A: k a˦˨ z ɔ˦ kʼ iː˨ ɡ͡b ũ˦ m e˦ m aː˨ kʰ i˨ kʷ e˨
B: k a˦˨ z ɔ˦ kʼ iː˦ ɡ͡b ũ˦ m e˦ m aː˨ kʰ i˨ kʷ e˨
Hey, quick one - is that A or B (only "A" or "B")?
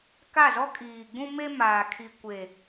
A